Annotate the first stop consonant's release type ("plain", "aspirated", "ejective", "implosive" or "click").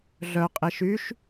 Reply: ejective